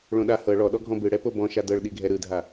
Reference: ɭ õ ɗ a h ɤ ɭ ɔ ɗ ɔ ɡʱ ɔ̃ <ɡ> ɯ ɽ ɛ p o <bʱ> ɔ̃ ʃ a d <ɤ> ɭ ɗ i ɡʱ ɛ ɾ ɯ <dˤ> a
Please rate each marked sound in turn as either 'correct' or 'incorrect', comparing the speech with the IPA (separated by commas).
incorrect, incorrect, correct, incorrect